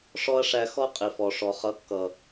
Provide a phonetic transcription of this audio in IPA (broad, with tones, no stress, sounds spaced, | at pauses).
ʂ ɔ˦ ɐ̯ ʂ æ˧ x ɔ˦ qʼ i˨ f ɔ˨ ʂ ɔ˨ χ ʌ˨˦ kː ʌ˨